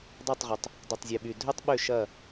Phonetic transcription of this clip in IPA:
dˤ ø˥˨ tˤ ʁ ʊ˨ tˤ | dˤ y˨ tˤ zʲ ø˨ ɓ y˨ dʱ ø˥ tˤ ɓ ʏ˥˨ ʃ ɐ˥˨

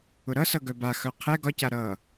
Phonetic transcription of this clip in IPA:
ʊ ɾ ʌ s ʌ ɡ œ b a x œ qʰ ɛ ɡ ɒ c a ɾ ʌ

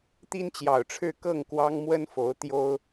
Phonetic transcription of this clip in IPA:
t̪ i˥ n t͡ɕ j ɑ˨˩ ʊ̯ ʈ͡ʂʰ ɻ̩˥˧ k ɤ˥˩ ŋ k w ɑ˥ ŋ m w ə˥ n f o˧˥ ʊ̯ t̪ j o˥ ʊ̯

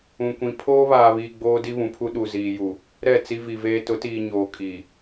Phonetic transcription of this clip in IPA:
ũ˨ kʷ ĩ˨ pʰ oː˦ β aː˨ β iː˨ ɡ͡b oː˦ d i˦ β ũ˨ pʰ u˦ ɗ u˨ z iː˨ j u˨ | ɾ ɛ˦˨ t͡s i˦ v i˨ v eː˦ t ʊ˨˦ t iː˨ ɲ oː˨ kʼ i˨

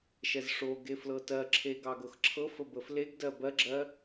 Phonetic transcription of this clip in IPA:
ʃ ɛ z ʂ o ɡ e f l ɤ t ɜ ǁʰ e ɡ ɑ ɡ ɤ x ǁʰ ɤ f ə b ə f l e ɡ d ɜ b ɜ ɡ͡ǁ ɜ

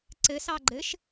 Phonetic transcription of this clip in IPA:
ǀ ɘ s ɑ ɡ͡ǃ ɘ ʃ

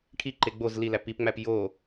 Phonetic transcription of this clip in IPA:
ʈʰ i ǃ e ɡ͡b o z l i l æ p i p ŋ͡m æ p j o

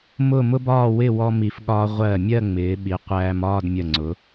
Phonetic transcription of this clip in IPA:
m ʊ˥˧ m ʊ˥ b ɒː˥˧ w ɪ˥˧ w ɔ˧ m i˧ f ɠ ɒː˥ ʁʷ ɜ˧˩ mʲ ɜ˥˧ ŋ͡m ɪː˩˧ ɓ i˩˧ qʷ æː˧ m ɒː˥˧ d mʲ ə˧˩ ŋ͡ǀ ʊ˩˧

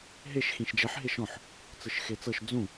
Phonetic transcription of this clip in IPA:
ɦ e ʃ x ĩ ʃ d͡ʒ ɛ ħ ɦ e ʃ ɔ̃ ħ | t͡s ɯ ʃ x e t͡s ɤ ʃ d͡z ũ

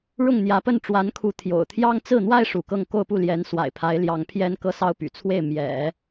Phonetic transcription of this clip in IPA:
ɻ ʊ˥˩ ŋ n̪ j ä˧˥ p ə˥˩ n ʈ͡ʂ w a˧˥ n kʰ u˧˥ t̪ʰ j o̰˨˩ ʊ̯ t̪ʰ j ɑ˥ ŋ t͡s ɹ̩˥˩ n̪ w a˥ ɪ̯ ʂ u˧˥ k ɤ˥˧ ŋ k o˥˧ ʊ̯ p u˥˩ l j ɛ˧˥ n s w a̰˨˩ ɪ̯ pʰ a˧˥ ɪ̯ l j ɑ˧˥ ŋ pʰ j ɛ˥ n k ɤ˥ s ɑ˥ ʊ̯ p y̰˨˩ t͡sʰ w e˥˩ ɪ̯ m j ɛ̰˨˩˦

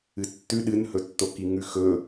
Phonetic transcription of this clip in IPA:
ɨ tː ʉ ɗ ɨ n h ɵ tː o k i ŋ ʉ x ɵ

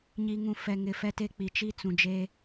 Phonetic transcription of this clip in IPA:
ɲ i˨ ŋ ũ˨ f ɛ˨ ŋ ɪ˨ f ɛ˦ t e˦ k͡p i˨ t͡ʃ i˦ t͡s ũ˨ d͡ʒ e˦

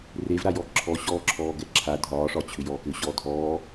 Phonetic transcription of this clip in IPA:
r e v ɾ a j ɔ ǁʰ ɔ ɕ ɔː ǁʰ ɔː ɡ ɛ ǁʰ a dʱ ɒː ʂ ɒ t͡ɕʰ ʏ j ɔː k ʏ ɕ ɔː dʱ ɔː

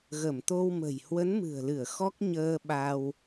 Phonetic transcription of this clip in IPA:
ɣ ə˧˩ m t̪ o˧ w m ə̤˨˩ j h w ə˨˦ n m ɨ̤˨˩ ə̯ l ɨ˧˩ ə̯ x ɔ˦˥ k̚ ɲ əː˧ ɓ a˧ w

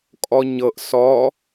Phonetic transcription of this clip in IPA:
kʼ ɔ ɲ ɤ ʔ s ɔ

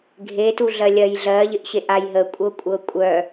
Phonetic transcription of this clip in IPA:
ɡʱ e t u ɮ ɜ lʲ ɜ j ɮ ɜ ʎ ɪ ʔ ɕ e ʔ a j ɦ ə kʷʼ ɤ kʷʼ ɤ kʷʼ œ

